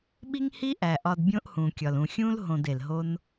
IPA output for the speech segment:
ɓi˦ŋhi˦ʔæ˨ ʔɒ˧dbʲõ˦ʔhũ˨kʲɒ˨l ũ˨xʲũ˦l ɦõ˧de˨lɦo˦n

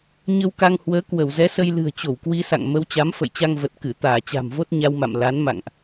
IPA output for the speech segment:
ɲə˧wka˧ŋhwəː˨˦ kwə˧˩wzɛ˨˦sə˧j lɨ̤˨˩ə̯ t͡ɕo˧˩wkwi˧sa̰˧˨ŋ mə˨˦wt͡ɕa˨˦mfə̰˧˨jt͡ɕa˧ŋ və˨˩t̚ kɨ˧˩ t̪aː˧˩t͡ɕa̤˨˩mvo˦˥t̚ ɲa˧wma̰˧˨m la˨˦nma̰˧˨ŋʔ

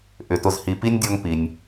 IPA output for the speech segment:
ʔʏ˩tʊ˨zhi˨ pi˥nʲdʲɔ˦ŋ pi˨nʲ

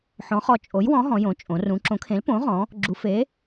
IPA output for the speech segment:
ħɔ̃˩˥ χɔ˩˥t͡ʃʼo˩˥jwɔ̃˩˥ ɦɔ̃˩˧jõ˩˧t͡ʃʼõ˩˧ rũ˩˧ǁõ˩˥kʰẽ˩˥lpõ˩˥ ʁɔ̃˩˥ | ɡ͡ǁu˩˧fe˩˥

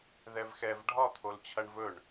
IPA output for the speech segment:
ðɛvxɛv ɖʱɒt̪ʰol t͡ɕʰɐɳvɵɳ

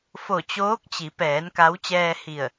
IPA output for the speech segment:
fo˧˩t͡ɕoː˧˥k̚t͡ɕi˩˧pɛː˩˧n ka˧˥w t͡ɕɛː˧hi˧˩ə̯

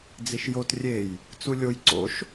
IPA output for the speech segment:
d͡ziʃjot rʲej | t͡sulʲoj ǀo̰ʃ

